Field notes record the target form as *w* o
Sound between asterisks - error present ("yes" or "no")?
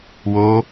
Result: no